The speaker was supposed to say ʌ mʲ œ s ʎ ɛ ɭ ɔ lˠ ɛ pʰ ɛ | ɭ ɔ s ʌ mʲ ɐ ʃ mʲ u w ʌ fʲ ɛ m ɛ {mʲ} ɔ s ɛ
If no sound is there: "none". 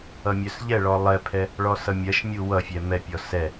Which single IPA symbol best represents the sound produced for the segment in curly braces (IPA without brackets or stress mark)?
pʲ